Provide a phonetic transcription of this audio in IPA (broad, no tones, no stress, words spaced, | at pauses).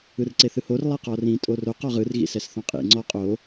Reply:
ɯrǀeθɯhor lˠɛqɔrĩ tʼoroq ɔʁɯr ɣḭsɛsθɔ̃qʼḭ ŋ͡ǀɔ qʼo